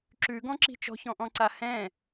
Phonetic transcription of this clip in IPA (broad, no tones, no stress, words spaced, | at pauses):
ǁʉ ɡɔ̃ǁi̤t͡ʃɔ̤ çɔ̃ʔɔ̃ǀa hɛ̃